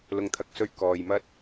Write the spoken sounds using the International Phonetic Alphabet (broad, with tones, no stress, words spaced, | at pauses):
lʊ˨ŋt̪ʰɐ˨k̚sɵ˧ɥ kɔː˨jmɐ˥t̚